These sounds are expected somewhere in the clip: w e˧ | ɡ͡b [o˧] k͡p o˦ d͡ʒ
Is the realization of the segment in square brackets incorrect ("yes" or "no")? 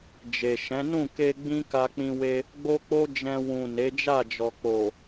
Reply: yes